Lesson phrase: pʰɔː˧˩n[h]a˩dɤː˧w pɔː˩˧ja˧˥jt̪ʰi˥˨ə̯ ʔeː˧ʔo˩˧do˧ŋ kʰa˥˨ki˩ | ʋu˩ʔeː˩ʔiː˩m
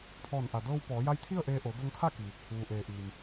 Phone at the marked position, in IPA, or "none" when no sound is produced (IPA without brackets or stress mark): ʔ